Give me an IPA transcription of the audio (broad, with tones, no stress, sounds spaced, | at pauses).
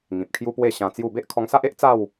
ŋ ĩ˨ p̚ kʰ j u˦ p w e˥˧ ɕ ã˧ t͡s j u˥˧ b e˦ ʔ kʰ ɔ˧ ŋ s a˦ ʔ e˦ ʔ t͡s a˥˧ w